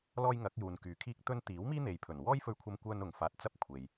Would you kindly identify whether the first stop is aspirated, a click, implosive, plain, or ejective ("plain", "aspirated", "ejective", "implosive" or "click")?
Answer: plain